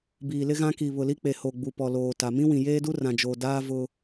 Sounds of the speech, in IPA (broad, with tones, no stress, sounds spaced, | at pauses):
b iː˨ l ɪ˦ ɣ ã˦ k i˨ β ʊ˨ l i˦ k͡p e˨ h o˨ ɡ͡b u˨ p ɔ˨ l oː˨ t a˨ m ĩ˦ w ĩ˨ j eː˦ d u˦ r ã˨ d͡ʒ o˨ d aː˦ v ʊ˦